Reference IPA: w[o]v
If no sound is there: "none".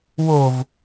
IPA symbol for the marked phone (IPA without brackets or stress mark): o